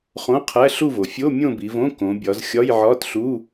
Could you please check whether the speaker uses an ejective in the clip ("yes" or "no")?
no